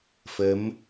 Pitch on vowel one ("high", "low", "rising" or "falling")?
rising